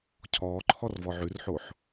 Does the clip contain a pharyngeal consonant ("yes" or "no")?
yes